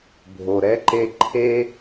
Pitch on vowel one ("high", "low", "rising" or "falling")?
low